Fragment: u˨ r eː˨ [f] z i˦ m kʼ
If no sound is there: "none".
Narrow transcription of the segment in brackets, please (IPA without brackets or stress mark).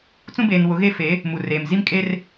m